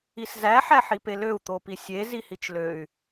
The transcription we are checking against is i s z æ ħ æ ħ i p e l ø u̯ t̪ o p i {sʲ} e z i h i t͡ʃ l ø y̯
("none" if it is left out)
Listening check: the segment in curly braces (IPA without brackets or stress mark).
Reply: sʲ